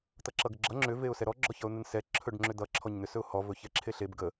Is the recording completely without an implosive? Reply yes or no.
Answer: yes